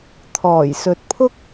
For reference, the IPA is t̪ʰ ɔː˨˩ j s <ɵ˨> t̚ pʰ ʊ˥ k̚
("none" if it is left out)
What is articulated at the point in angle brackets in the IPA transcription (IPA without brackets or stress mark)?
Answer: ɵ˨